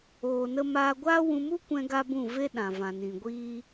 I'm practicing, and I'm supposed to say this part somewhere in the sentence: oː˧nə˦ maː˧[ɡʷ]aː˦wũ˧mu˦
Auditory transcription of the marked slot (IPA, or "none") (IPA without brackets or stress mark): ɡʷ